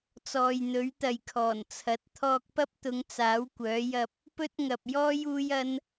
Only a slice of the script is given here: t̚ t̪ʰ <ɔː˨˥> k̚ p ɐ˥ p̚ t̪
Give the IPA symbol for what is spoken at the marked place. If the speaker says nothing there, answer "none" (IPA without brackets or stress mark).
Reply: ɔː˧